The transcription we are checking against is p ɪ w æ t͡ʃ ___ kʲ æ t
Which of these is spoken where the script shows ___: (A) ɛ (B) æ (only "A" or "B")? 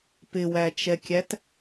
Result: A